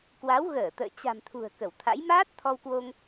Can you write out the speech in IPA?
k w a˨˦ w ɣ əː˧˩ t̪ ə̰ː˧˨ t͡ɕ a̤˨˩ m t̪ʰ ṳ˨˩ ə̯ k ə˧˩ w t̪ʰ a̰˧˥ j m aː˦˥ t̚ t̪ʰ ɔ˧ w k w o˧ ŋ

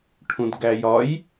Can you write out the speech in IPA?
ʈʰ ũ d ɡ æ j ɒ j

